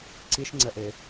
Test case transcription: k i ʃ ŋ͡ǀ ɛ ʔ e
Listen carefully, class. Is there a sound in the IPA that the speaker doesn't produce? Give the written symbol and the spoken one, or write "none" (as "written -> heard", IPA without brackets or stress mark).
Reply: k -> ǀ